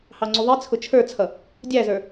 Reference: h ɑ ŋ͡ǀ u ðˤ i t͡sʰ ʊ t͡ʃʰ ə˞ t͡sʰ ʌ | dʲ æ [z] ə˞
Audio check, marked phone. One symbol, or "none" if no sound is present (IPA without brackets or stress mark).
z